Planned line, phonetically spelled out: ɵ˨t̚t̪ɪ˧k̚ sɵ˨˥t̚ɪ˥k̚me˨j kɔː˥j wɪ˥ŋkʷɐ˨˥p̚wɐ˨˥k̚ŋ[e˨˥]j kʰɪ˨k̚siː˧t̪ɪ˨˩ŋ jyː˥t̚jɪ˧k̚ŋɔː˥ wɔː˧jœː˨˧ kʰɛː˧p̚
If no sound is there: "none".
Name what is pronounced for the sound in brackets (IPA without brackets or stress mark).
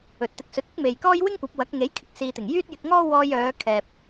e˨˥